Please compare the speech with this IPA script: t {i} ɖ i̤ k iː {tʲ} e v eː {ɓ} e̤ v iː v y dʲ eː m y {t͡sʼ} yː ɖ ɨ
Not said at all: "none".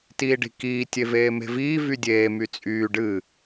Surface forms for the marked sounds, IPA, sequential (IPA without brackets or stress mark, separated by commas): iː, tʲ, m, t͡sʼ